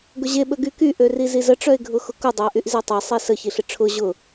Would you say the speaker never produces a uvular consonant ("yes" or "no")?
yes